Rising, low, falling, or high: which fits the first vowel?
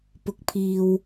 low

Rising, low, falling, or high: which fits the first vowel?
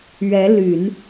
rising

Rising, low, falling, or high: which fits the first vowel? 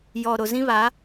low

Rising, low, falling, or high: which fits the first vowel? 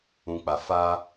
low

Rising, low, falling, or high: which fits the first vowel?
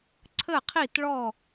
falling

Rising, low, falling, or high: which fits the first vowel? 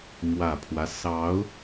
low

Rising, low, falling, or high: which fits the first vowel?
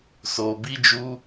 low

